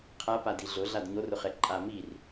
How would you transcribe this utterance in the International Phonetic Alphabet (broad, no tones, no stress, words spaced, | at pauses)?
qʰapa diɮʊ ɮadɲorʊχɛ ǃʼa mir